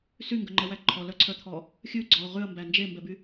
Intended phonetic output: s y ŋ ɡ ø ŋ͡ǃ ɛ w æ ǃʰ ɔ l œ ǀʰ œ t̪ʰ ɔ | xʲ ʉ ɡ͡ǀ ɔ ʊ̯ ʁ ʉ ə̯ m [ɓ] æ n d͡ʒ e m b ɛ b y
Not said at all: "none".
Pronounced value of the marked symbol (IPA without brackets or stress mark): b